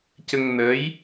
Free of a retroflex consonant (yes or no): yes